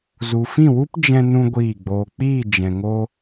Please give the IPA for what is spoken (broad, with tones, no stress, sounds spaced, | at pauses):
z u˨ f ĩ˦˨ w u˦ p d͡ʒ ɛ̃˦ n ũ˦ ɡʷ iː˦˨ ɡ͡b oː˧ k͡p iː˦˨ d͡ʒ ɛ̃˨ ŋ o˧